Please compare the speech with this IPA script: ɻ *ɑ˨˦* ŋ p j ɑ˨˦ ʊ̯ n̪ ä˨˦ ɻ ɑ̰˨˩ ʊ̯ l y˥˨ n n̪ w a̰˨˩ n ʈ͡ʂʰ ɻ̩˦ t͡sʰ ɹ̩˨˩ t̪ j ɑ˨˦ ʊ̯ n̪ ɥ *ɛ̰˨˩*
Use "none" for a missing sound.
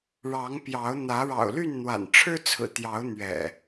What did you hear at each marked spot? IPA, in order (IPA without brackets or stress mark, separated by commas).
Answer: ɑ˨˦, ɛ̰˨˩